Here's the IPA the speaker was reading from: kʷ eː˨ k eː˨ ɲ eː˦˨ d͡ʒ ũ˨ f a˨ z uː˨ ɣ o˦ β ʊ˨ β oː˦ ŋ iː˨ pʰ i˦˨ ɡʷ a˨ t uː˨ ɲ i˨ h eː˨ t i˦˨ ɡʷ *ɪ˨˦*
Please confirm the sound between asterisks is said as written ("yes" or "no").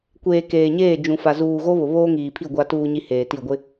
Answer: no